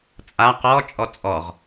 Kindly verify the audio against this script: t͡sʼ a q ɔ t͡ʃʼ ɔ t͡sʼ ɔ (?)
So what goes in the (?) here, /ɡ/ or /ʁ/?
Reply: ʁ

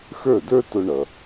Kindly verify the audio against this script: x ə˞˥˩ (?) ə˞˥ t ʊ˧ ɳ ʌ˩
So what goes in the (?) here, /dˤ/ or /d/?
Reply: d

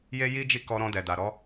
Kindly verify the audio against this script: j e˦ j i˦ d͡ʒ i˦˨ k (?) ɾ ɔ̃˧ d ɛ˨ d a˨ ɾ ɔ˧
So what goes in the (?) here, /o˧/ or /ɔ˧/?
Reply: ɔ˧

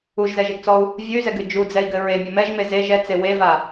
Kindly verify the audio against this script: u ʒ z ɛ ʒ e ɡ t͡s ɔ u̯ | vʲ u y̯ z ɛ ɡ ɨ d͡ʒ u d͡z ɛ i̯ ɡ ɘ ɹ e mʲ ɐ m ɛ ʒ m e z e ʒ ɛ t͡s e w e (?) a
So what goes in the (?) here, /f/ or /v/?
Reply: v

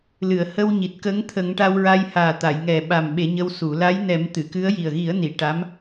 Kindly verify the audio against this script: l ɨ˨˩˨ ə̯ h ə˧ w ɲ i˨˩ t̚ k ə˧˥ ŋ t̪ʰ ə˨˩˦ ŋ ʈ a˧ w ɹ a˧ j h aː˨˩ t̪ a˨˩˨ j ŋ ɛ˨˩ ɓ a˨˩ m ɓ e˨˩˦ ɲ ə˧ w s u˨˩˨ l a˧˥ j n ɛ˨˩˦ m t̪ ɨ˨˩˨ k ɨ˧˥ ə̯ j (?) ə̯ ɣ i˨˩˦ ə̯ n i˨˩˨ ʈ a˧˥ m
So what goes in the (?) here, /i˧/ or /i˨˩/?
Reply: i˨˩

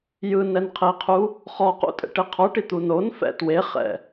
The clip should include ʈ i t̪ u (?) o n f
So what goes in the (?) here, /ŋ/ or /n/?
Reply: n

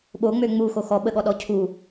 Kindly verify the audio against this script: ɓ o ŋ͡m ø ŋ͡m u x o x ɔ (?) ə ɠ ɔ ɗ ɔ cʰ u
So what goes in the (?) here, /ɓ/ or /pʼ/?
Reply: ɓ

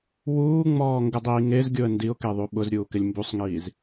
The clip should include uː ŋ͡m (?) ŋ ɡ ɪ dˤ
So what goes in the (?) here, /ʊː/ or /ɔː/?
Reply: ɔː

